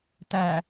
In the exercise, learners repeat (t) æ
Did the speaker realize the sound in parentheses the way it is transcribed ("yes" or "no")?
yes